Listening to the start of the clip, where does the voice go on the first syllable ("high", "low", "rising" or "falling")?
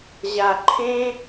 low